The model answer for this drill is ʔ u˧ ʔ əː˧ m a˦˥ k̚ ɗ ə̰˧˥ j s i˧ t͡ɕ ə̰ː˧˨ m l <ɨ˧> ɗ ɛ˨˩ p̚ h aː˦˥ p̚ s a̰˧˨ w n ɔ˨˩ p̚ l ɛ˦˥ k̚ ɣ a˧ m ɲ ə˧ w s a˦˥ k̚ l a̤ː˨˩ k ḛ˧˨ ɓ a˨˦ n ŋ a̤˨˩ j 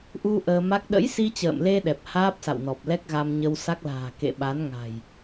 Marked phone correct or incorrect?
incorrect